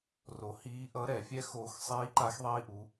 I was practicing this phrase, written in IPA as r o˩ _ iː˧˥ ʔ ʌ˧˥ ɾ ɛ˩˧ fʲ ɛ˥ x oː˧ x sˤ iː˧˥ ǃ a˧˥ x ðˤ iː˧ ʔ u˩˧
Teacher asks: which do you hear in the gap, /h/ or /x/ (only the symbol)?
h